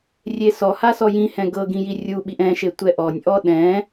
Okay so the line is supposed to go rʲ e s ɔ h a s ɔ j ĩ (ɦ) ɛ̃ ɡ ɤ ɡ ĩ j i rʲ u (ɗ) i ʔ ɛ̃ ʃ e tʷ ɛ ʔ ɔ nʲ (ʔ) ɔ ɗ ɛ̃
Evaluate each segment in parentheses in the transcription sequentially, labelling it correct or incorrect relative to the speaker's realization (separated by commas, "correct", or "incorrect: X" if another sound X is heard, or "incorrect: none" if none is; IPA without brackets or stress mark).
incorrect: h, incorrect: ɓ, correct